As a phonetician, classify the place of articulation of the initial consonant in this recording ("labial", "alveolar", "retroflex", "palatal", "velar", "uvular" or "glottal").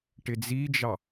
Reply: retroflex